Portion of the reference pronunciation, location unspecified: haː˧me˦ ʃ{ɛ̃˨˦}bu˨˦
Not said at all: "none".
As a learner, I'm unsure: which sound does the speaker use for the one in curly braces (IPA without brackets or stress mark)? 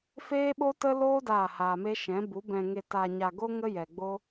ɛ̃˨˦